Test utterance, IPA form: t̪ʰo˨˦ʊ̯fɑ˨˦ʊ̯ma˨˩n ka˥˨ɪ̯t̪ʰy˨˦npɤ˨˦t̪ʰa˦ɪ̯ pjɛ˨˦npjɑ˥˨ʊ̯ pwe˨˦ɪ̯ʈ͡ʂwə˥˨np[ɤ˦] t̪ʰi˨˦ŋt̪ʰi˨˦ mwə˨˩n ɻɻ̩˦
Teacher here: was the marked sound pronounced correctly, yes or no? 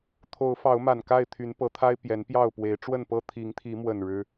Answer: no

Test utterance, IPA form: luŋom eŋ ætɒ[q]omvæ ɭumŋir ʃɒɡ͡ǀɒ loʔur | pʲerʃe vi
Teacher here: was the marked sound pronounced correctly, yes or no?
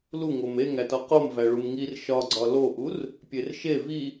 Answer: yes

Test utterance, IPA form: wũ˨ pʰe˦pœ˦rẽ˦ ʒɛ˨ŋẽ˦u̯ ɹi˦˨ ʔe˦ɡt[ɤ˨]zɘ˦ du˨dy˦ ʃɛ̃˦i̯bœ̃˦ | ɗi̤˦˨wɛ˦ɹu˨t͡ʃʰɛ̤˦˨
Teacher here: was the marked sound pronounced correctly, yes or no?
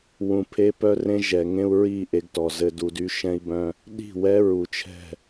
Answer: no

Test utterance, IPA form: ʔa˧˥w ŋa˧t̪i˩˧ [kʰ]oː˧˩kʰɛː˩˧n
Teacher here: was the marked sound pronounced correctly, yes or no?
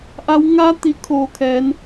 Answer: yes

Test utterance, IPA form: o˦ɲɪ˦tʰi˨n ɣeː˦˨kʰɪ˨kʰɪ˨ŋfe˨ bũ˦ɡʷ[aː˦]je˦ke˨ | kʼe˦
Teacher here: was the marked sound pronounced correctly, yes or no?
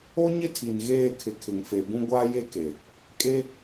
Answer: yes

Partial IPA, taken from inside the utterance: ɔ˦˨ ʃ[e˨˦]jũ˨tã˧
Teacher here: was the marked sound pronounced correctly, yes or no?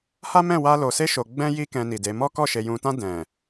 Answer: no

